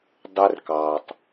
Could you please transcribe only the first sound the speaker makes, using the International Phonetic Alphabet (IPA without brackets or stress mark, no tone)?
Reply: dˤ